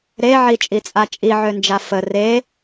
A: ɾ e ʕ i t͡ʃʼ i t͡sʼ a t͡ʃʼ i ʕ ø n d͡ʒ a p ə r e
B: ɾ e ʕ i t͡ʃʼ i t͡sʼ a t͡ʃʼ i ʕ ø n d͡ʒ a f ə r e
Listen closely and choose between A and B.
B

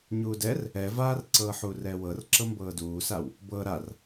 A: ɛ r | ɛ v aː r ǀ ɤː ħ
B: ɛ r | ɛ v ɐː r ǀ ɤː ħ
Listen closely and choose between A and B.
A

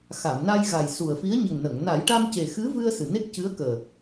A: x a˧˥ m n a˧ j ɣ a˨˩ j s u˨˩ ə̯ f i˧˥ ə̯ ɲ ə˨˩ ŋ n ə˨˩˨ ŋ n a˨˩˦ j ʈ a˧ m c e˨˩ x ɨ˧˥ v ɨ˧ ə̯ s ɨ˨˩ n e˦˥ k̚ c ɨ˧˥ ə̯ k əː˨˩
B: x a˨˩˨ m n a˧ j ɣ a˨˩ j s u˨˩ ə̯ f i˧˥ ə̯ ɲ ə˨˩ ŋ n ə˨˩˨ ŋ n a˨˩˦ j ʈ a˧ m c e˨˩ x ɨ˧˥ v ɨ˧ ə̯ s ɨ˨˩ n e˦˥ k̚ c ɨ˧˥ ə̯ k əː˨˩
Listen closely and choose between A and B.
B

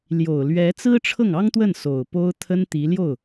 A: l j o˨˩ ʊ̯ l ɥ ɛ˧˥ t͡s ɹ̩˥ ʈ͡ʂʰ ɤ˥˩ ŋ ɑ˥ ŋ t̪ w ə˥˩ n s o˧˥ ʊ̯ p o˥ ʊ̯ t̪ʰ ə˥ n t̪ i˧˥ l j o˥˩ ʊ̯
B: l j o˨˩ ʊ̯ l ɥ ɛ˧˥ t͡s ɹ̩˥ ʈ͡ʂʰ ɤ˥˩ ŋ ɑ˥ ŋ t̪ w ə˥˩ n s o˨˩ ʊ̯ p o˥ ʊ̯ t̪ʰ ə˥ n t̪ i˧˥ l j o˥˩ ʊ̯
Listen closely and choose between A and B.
B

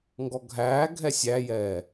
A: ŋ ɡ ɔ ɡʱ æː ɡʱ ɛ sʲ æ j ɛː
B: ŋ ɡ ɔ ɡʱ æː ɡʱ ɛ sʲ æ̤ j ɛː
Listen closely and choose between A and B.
A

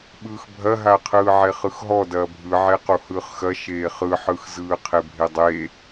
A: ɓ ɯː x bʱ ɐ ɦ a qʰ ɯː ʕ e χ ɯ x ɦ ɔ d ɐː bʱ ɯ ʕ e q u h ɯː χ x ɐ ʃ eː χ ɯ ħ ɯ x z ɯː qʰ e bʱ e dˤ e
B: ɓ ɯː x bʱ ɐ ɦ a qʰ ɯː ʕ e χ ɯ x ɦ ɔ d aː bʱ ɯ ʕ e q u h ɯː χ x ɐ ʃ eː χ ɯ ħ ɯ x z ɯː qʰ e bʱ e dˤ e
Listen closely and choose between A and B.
A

